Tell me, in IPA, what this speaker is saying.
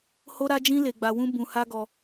h o˦ ɾ a˦ d͡ʒ ĩ˦ l e˧ ɡ͡b a˧ w ũ˦ b ũ˧ h a˦ ɡ ɔ˧

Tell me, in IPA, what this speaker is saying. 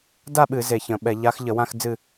d a˥˧ ɓ ɨ˧˩˧ z e˧˩ ç ə̃˧˩˧ ɓ ɛ˧˩˧ ʎ a˧˥ x ʎ ə˧˩˧ w ã˥˧ x d͡z ɨ˥˧

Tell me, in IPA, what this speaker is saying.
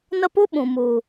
n ə˦ p u˦ ɓ ũ˨ m u˨

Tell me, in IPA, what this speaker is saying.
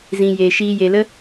z ĩ˨ j e˨ ʃ iː˧ j e˧ l ə˦

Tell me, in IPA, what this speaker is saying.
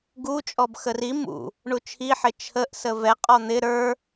ɡ u t͡ʃʼ ɔ b x ə r i m ṵ | ɳ u t͡ʃʰ i ħ ɪ t͡ʃʰ ə ʔ s ə v ɛ qʼ ɔ n̪ ɪ ɾ ə˞

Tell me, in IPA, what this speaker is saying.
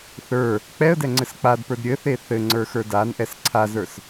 θ ə˞ | k͡p ɛ ə̯ d ɛ ŋ͡ǀ ɘ s k͡p a d p ə˞ d ɾʲ ɘ θ e θ ɘ ŋ͡ǀ ə˞ x ə˞ d a n ʔ ɛ s ǀʰ a z ə˞ s

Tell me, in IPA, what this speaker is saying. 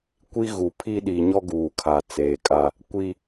kʷ i˦ ɣ u˨ pʰ i˦ ɗ i˨ ɲ ɔ˦ ɡ uː˨ kʰ a˨ t͡s eː˨ kʼ a˦ | kʷ i˦

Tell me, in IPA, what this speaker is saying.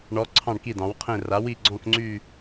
ɳ ɔ˩˧ ǀʰ ɑ̃˧˩ ɳ k i˧˩ d ɑ̃˩˧ w qʰ ẽ˧˩ r a˩˧ w i˧˩ ɡ͡ǀ ɔ̃˧˩ k ŋ͡ǀ y˧˩

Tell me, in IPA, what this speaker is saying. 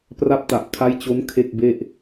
p r a˦˥ p̚ t a˨˩ ʔ kʰ a˦˥ j t͡ɕ o˦˥ n kʰ e˥˩ k̚ b e˥˩ ʔ

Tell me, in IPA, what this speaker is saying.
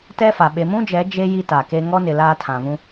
t ɛ˦ f a˨ ɓ e˨ m ũ˦ d͡ʒ ɛ˨˦ d͡ʒ e˦ j i˦ t a˨ k e˦ ŋ ɔ˦ n ɪ˨ l aː˦ tʰ ã˨ v ũ˦

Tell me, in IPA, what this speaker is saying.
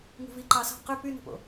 ŋ ṳ v i ǃ ɑ s ɑ̤ q ø p y n o̤ p o̰

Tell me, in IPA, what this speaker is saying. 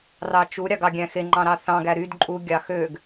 r ɑ t͡ʃ u ɾʲ ɑ ɡ ɑ ɡʲ æ̃ x e ŋ͡ǃ ɑ̃ ɾ ɑ θ ɑ̃ ɡ æ ɾ y d ǃʼ u ɡʲ ɑ x ø ɡ

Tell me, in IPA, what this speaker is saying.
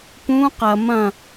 p ũ q ɐ m ɐ̃

